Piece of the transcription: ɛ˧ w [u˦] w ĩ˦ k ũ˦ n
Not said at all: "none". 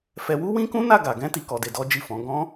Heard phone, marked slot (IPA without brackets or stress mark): u˦